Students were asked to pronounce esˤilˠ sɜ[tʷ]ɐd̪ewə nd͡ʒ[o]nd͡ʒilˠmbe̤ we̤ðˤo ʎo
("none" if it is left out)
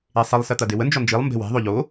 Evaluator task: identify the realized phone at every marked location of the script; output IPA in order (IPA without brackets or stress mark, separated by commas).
t̪, ɔ